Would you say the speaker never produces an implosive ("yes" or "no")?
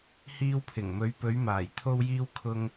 yes